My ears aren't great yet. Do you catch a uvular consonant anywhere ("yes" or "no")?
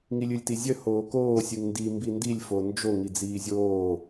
no